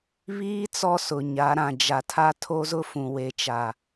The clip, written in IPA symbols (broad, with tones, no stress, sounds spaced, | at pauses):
β iː˦ t͡s ɔ˦ s ʊ˨ ɲ a˨˦ ɾ ã˨ d͡ʒ a˨ tʰ a˦ tʰ o˦ z ʊ˦ f ũ˨ w e˨ t͡ʃ a˨